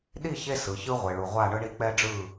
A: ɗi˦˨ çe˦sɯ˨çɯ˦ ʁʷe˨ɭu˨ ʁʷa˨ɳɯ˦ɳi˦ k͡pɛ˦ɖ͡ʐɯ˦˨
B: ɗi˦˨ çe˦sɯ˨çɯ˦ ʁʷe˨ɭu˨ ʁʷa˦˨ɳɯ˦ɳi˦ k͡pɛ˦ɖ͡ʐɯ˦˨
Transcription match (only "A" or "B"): B